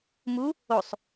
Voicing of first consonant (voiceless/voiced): voiced